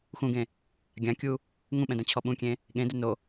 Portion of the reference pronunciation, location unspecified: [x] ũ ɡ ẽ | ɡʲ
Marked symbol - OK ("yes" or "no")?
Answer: yes